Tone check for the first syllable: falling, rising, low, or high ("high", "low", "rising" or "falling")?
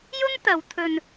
high